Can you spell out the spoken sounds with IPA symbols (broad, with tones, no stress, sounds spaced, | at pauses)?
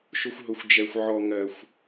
ʃ ʊ˧ xʷ ɦ ʊ˨˦ xʷ d͡ʒ ɛ˨ xʷ ʕ ɔ˨ ŋ ɜ˨ xʷ